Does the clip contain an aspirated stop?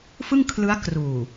yes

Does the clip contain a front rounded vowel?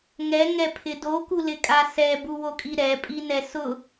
no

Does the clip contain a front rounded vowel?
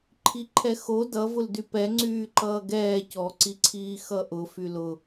yes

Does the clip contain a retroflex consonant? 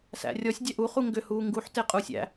no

